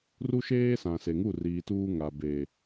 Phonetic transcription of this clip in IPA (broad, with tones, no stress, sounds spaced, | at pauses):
r u˦ ʃ eː˦ s ã˨ s e˨ ŋ u˦˨ r iː˨ t uː˦ ŋ a˨ b e˨